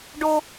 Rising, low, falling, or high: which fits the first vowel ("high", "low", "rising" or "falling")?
high